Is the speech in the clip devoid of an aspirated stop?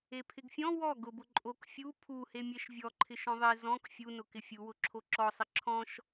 no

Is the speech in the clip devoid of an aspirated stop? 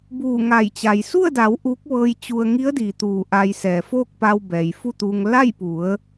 yes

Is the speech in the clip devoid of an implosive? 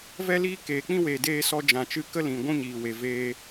yes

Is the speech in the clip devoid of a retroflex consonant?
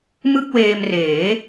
yes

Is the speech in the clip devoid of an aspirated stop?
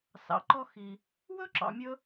yes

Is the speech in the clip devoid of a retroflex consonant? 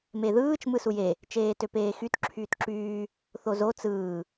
yes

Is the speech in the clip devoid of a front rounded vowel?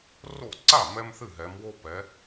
yes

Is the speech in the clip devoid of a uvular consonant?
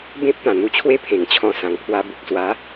yes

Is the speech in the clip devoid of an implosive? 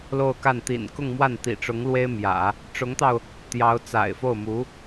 yes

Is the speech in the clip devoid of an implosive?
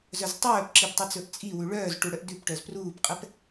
yes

